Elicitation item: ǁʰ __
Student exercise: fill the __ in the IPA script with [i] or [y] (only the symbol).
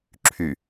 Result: y